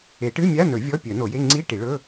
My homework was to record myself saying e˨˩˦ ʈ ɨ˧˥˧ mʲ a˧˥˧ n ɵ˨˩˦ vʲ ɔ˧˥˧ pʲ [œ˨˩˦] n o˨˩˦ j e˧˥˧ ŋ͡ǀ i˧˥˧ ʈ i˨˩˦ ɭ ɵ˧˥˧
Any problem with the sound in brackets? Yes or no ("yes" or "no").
no